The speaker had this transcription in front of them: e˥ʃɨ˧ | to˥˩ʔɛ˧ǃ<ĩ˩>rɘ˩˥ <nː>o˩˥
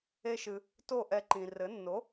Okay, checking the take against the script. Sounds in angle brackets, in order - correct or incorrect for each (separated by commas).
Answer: correct, correct